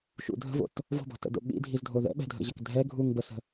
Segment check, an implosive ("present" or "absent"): present